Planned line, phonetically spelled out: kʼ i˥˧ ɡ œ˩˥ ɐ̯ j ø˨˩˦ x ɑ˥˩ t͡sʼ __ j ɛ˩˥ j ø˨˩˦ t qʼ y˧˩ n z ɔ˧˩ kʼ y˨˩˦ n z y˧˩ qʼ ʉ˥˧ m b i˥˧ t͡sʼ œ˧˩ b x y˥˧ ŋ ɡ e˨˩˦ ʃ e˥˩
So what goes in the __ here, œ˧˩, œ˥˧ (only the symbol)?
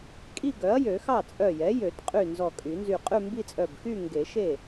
œ˧˩